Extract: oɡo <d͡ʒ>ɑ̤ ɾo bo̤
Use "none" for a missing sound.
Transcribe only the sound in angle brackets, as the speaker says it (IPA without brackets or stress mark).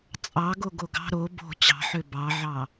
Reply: ɡ